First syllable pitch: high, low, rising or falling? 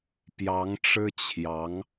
rising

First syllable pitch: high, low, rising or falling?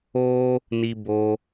high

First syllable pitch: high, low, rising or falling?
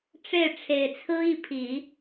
falling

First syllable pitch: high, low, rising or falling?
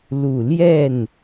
low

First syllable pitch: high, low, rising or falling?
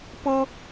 high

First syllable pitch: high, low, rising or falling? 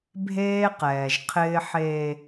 high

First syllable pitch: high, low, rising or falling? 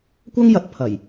high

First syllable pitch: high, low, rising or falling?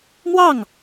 falling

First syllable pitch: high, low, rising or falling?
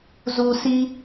low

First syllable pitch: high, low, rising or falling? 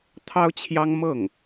high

